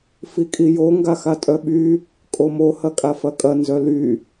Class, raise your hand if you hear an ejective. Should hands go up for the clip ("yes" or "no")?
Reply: yes